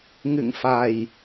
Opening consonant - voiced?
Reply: yes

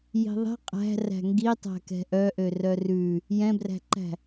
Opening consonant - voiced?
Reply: yes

